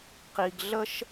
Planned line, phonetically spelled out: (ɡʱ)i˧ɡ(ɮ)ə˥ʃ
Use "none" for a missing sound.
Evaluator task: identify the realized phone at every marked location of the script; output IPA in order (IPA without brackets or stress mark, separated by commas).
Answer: q, ɮ